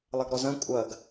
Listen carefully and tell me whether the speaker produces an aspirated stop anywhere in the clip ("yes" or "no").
no